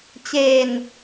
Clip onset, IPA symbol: t͡ɕ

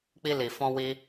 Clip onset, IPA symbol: k͡p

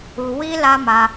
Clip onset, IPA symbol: u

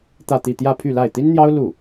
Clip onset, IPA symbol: t̪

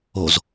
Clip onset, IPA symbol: o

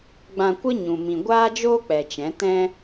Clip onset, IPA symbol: ɡ͡b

